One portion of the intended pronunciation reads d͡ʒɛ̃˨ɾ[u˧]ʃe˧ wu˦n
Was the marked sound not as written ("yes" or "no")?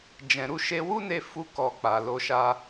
no